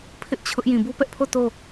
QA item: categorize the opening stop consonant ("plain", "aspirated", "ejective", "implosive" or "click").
aspirated